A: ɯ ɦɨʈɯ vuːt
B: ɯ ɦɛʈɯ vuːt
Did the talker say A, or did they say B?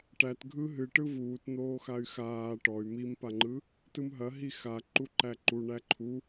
A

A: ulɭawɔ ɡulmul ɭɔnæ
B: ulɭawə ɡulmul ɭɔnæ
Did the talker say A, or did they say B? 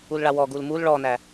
A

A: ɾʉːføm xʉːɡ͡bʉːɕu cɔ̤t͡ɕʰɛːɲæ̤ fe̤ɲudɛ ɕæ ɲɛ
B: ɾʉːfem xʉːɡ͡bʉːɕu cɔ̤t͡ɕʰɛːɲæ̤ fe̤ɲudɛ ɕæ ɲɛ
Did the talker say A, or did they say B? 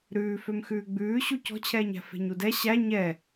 A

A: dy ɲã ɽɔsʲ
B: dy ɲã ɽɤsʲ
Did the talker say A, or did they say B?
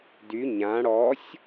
A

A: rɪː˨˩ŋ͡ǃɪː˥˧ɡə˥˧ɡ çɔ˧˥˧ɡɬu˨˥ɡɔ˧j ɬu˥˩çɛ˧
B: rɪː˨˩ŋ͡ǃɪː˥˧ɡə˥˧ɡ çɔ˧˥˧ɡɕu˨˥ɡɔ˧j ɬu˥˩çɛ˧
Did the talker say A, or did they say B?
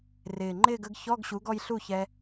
B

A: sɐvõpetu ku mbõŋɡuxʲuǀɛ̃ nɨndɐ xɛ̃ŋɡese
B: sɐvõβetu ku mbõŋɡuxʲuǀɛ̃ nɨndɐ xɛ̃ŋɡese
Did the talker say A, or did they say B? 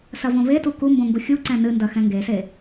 B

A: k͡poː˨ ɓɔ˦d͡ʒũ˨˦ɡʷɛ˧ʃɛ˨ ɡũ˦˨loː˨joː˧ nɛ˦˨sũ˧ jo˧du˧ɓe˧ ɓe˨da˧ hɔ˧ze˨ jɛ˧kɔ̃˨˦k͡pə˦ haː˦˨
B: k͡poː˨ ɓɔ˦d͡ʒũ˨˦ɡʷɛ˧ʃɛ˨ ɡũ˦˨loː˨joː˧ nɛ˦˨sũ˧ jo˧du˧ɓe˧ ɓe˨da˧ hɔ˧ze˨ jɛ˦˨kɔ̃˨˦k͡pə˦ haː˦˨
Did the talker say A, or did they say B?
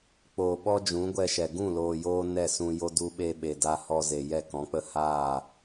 B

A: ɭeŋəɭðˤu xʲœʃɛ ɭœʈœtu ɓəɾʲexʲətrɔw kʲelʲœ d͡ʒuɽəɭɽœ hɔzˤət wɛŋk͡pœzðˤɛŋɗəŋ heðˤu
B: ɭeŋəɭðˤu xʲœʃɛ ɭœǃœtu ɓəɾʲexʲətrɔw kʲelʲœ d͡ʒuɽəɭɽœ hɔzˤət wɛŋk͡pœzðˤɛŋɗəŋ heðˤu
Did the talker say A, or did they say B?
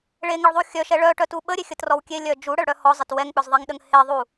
A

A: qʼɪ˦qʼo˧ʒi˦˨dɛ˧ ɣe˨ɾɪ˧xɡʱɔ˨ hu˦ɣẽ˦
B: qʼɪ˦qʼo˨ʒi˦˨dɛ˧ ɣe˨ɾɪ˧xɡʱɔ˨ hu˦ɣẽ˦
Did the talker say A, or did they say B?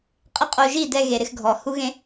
A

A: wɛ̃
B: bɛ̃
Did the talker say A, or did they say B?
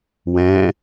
A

